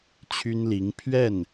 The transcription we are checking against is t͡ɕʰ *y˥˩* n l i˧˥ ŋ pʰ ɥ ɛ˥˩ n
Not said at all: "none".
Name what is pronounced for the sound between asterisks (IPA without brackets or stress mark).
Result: y˥